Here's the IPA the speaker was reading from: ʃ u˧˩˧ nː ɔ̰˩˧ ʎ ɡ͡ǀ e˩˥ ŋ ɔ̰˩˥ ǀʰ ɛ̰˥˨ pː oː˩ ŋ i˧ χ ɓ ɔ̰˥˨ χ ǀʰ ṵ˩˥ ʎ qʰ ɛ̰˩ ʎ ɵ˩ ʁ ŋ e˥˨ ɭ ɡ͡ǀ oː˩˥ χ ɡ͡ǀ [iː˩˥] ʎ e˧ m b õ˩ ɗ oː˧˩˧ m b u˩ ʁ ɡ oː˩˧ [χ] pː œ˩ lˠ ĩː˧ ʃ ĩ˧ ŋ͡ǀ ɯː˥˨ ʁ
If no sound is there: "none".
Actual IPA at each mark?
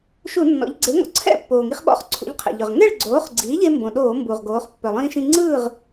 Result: iː˩˥, χ

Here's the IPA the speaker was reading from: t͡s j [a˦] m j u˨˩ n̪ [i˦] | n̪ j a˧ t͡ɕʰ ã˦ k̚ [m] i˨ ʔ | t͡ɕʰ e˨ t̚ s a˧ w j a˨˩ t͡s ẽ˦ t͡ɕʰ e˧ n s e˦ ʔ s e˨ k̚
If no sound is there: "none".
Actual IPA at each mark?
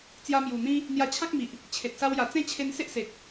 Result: a˧, ĩ˦, m

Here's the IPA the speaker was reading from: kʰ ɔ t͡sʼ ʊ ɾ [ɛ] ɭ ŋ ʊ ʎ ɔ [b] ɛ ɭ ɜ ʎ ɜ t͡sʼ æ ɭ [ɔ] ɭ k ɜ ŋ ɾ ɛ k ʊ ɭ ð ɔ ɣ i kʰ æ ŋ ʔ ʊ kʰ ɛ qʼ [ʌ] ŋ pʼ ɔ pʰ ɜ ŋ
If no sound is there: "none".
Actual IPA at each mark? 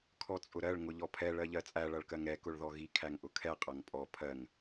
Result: ɜ, pʰ, ʌ, ʌ

